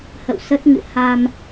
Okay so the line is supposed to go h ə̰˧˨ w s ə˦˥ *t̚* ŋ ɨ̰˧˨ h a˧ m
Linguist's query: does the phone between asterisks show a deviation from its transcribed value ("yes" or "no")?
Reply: no